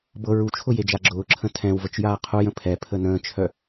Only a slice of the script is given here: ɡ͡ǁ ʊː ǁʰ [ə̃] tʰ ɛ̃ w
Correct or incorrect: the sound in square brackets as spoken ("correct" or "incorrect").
correct